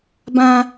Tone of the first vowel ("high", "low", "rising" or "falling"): high